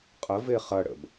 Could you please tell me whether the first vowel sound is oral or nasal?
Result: oral